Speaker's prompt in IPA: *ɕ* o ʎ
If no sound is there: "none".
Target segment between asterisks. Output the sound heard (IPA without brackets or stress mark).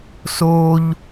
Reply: s